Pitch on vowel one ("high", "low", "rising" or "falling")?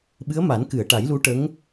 rising